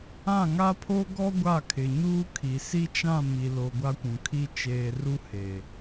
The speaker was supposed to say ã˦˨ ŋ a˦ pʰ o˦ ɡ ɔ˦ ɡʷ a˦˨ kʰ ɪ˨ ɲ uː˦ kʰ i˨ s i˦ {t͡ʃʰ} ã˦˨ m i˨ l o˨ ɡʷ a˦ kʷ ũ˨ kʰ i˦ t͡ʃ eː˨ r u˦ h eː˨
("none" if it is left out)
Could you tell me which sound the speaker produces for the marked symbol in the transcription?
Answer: t͡ʃ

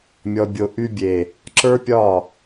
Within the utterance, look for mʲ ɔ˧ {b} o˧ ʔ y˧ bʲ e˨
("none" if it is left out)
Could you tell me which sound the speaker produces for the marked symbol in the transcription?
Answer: bʲ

